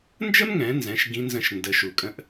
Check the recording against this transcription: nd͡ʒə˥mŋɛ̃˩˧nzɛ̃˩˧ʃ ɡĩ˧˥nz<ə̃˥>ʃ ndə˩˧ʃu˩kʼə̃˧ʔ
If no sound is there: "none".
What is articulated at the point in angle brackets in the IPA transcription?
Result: ə̃˧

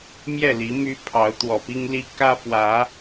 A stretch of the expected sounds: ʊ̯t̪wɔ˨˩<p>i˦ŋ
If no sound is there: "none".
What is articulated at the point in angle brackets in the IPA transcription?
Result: p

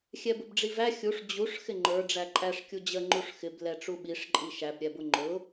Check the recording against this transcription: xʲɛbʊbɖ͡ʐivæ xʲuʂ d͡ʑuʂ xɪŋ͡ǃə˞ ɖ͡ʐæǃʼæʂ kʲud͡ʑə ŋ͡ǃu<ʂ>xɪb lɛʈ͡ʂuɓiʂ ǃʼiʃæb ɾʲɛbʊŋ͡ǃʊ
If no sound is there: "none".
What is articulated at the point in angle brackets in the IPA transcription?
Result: ʂ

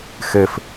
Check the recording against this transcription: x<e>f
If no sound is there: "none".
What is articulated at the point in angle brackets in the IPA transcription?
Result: e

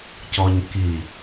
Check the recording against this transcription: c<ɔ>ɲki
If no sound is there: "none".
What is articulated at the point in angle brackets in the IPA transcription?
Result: ɔ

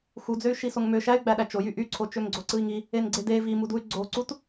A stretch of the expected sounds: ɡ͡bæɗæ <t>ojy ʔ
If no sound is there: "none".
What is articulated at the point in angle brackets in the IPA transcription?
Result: t͡ʃ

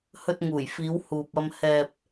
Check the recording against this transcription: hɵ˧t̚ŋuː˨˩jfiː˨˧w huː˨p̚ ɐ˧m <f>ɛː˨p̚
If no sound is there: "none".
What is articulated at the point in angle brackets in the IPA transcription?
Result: h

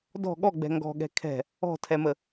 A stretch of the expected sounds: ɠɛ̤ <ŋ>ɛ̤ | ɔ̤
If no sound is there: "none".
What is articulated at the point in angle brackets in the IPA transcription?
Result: kʰ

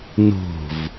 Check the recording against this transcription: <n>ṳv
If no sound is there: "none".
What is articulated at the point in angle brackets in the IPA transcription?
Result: n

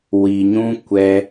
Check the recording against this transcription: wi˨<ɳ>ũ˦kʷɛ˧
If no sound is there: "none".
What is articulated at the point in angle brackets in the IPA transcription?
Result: ɲ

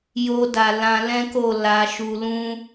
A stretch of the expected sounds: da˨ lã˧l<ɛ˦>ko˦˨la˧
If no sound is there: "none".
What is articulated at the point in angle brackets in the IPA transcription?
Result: ɛ̃˦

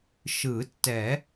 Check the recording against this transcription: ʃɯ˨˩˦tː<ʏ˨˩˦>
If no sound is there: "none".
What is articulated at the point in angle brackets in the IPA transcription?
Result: ɛ˨˩˦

